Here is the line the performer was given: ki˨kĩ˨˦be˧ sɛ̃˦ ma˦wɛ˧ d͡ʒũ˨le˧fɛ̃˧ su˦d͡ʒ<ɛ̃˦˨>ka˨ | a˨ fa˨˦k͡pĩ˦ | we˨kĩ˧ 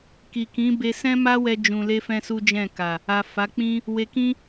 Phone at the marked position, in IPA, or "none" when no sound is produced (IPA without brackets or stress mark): ɛ̃˦˨